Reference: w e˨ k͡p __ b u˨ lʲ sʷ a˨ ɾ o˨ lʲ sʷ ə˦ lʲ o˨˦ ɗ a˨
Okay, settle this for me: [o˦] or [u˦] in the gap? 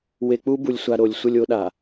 u˦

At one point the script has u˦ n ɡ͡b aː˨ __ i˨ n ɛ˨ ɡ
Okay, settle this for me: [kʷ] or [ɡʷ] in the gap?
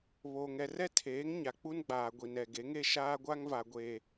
ɡʷ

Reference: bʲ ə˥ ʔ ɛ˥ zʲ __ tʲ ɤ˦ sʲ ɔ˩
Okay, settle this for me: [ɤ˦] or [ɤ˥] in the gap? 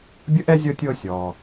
ɤ˦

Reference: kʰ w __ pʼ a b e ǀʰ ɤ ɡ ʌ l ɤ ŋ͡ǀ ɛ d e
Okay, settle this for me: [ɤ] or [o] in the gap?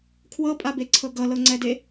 ɤ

